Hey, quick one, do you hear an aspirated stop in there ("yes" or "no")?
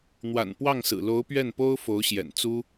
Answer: no